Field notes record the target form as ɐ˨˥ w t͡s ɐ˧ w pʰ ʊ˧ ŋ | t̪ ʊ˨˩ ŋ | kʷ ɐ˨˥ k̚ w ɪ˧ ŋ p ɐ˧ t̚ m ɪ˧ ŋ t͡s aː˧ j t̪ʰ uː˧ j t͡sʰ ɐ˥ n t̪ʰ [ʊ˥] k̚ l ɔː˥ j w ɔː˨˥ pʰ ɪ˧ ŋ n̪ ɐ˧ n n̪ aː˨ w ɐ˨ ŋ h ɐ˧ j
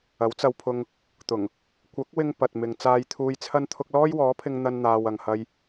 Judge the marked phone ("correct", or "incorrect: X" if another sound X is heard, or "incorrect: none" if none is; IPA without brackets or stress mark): incorrect: ʊ˧